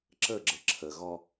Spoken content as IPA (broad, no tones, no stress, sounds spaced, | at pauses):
ǁ ə ɡ͡ǁ ə ǁʰ ə ɣ ɔ